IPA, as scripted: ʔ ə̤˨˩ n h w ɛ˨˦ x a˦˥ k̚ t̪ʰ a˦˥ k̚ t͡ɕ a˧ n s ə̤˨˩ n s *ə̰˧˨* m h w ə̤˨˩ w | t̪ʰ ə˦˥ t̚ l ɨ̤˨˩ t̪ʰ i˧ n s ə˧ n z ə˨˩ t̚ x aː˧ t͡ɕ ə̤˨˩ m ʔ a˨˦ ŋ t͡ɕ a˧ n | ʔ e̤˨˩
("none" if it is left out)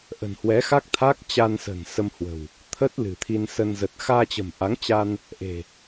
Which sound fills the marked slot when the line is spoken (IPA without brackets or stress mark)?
ə˧